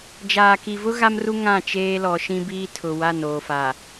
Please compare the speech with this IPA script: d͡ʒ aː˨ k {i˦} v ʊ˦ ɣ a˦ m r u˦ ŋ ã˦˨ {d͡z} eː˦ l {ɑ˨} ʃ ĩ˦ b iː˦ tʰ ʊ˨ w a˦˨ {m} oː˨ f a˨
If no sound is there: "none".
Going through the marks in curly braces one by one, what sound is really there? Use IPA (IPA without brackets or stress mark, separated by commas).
i˨, t͡ʃ, ɔ˨, n